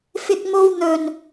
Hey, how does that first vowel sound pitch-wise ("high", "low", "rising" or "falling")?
high